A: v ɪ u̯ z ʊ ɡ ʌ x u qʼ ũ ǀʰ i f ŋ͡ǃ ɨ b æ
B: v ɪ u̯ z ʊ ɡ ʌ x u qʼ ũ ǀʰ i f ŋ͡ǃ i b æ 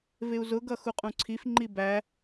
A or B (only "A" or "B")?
B